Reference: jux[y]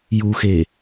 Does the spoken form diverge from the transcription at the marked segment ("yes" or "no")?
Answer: yes